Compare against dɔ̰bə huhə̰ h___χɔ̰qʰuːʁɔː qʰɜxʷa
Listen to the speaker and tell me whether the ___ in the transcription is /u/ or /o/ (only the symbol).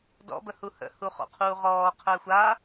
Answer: u